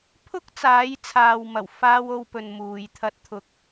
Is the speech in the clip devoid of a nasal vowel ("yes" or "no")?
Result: yes